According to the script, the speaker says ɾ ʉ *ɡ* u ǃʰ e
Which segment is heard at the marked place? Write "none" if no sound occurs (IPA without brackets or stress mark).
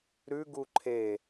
ɡ